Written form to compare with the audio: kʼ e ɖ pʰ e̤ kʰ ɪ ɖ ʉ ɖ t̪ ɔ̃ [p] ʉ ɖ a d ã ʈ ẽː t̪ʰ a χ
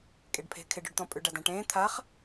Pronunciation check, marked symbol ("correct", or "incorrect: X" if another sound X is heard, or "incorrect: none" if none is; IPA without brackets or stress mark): incorrect: pʼ